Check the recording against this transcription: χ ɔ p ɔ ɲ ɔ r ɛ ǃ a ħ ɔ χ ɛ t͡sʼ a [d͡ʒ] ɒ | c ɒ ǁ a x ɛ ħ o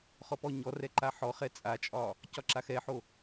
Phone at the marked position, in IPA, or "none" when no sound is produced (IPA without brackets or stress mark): t͡ʃʼ